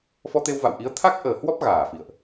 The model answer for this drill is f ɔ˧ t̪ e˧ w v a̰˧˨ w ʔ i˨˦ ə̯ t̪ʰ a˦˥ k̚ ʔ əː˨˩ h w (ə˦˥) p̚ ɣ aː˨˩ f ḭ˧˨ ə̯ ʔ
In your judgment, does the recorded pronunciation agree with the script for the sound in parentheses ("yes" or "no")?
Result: no